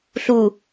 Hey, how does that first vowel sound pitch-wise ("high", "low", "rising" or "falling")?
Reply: low